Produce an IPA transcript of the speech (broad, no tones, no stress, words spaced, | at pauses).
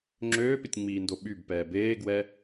ŋ͡ǁøːpɪtʲŋ͡miːndo ɓybpɛː beːɡwɛ